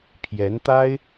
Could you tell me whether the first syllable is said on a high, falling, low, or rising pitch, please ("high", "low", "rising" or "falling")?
rising